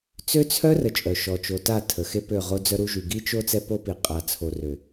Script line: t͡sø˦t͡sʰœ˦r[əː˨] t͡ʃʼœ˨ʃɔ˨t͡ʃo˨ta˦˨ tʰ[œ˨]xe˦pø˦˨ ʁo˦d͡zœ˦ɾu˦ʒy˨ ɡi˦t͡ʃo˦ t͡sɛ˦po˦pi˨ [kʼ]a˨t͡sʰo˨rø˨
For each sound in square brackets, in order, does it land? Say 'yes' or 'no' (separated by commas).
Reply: no, no, no